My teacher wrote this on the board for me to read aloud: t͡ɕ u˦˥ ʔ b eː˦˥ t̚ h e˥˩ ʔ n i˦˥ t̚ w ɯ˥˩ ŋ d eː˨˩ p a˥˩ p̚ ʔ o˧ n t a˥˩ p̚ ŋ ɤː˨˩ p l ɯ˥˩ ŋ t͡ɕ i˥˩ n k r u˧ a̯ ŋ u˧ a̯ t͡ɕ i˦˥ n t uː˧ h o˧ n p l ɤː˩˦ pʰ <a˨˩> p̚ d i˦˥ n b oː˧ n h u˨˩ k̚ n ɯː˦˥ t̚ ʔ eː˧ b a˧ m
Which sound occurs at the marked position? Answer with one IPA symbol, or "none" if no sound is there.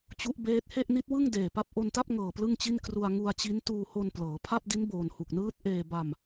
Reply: a˥˩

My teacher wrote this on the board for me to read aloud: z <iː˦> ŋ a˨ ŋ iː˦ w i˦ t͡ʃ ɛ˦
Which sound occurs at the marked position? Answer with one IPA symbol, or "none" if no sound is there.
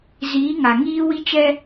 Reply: iː˨˦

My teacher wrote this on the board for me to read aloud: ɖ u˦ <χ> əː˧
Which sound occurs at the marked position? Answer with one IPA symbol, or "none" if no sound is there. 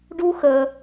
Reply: x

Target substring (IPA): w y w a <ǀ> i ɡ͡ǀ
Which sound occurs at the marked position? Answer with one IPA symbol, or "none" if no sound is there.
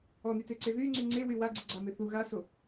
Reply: ɡ͡ǀ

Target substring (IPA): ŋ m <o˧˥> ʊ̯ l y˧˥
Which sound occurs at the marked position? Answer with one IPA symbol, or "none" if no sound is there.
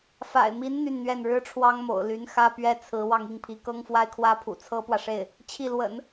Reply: o̰˨˩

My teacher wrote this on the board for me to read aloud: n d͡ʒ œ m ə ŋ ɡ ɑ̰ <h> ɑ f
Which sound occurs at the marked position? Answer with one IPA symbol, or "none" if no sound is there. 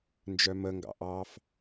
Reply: ʔ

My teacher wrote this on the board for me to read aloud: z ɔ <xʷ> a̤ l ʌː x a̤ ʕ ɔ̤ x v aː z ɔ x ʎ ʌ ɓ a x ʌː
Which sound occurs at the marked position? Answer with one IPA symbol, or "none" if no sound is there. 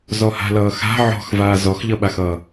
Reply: h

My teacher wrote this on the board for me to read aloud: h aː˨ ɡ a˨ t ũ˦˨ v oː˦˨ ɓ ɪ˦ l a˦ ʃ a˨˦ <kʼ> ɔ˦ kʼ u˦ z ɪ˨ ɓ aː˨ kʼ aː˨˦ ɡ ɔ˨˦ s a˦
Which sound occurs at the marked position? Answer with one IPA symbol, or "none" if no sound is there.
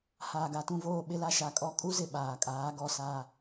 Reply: kʼ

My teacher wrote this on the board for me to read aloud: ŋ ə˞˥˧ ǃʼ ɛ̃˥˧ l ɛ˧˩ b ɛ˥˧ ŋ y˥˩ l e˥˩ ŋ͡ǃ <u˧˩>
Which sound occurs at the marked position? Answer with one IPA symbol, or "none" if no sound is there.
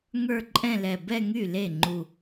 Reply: u˧˩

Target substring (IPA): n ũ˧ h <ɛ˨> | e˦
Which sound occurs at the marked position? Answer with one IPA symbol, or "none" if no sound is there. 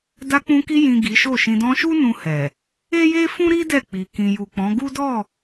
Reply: ɛ˨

